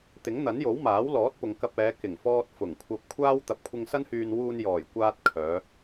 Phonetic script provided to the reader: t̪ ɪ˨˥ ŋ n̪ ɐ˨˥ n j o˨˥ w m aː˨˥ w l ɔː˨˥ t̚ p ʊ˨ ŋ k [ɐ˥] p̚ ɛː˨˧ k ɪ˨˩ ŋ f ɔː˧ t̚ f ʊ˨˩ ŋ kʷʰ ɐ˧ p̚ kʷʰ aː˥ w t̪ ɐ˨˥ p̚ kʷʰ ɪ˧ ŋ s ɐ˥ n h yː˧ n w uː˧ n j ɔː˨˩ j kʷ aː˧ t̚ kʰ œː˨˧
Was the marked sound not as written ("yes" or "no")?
yes